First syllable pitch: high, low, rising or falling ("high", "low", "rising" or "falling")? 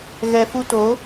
low